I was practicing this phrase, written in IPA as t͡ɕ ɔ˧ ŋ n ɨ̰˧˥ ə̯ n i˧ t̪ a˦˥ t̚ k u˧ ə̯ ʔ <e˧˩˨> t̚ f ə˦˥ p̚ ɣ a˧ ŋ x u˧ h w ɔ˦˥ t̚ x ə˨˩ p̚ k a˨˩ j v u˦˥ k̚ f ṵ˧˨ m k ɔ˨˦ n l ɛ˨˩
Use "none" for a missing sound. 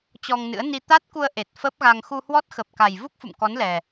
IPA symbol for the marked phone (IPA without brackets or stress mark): e˨˩